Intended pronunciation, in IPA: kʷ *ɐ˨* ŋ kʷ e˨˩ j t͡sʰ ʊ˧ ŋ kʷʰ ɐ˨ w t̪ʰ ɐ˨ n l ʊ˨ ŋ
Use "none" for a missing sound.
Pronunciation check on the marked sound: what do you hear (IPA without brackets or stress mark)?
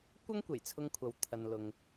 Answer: ɐ˥